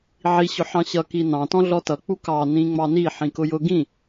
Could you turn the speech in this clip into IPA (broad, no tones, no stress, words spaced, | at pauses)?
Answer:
ʕi ɕʊħɑ̃ɕʌ kinɑ̃ tɔ̃ɮɔtʌ k͡pukɑ nĩŋ͡mɑni ħĩkʊjʊ ɡĩ